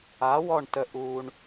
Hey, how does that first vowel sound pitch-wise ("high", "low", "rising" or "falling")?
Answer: rising